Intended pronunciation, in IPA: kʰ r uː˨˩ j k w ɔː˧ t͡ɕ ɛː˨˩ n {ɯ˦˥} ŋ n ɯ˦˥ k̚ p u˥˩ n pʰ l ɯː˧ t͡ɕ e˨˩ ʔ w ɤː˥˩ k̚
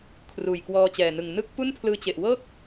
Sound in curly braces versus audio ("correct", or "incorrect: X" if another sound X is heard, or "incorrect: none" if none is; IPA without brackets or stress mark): incorrect: ɯ˨˩